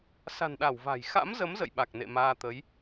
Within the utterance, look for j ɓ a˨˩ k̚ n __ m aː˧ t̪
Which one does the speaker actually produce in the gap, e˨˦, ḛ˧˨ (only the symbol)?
ḛ˧˨